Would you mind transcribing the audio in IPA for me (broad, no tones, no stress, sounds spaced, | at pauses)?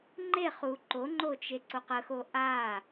ŋ͡ǃ e χ u ǃ o ŋ͡ǃ o t͡ʃ e ǀ o q ə x o ʔ a